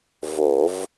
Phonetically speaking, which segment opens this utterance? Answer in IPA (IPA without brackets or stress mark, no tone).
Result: v